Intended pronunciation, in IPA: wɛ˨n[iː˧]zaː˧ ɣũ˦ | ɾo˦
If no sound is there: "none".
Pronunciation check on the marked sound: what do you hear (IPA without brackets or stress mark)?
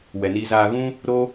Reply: iː˧